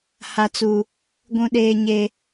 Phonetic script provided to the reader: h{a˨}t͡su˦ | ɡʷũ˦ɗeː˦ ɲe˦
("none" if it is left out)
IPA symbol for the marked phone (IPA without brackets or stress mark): a˦